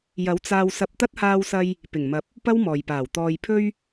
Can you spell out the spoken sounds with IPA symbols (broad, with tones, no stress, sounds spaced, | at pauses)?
j ɐ˨˥ w t͡s aː˧ w s ɐ˧ p̚ t̪ ɐ˥ t̚ h aː˧ w s ɐ˧ j | p ɪ˨˩ ŋ m ɐ˨˥ p̚ | p ɐ˥ w m ɔː˨ j p aː˨˩ w t̪ ɔː˨ j pʰ ɵ˧ ɥ